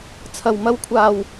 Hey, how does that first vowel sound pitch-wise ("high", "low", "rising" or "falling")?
low